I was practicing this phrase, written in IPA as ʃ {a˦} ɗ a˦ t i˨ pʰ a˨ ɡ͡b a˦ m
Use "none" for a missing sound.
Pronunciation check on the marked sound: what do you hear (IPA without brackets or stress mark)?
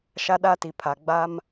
a˦